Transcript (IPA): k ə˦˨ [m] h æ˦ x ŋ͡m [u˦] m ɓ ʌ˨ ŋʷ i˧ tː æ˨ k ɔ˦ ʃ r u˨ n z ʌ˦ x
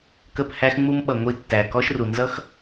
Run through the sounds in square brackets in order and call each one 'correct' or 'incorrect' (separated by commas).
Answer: incorrect, correct